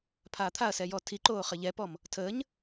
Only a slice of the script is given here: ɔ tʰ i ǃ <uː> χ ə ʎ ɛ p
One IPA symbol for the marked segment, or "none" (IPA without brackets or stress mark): oː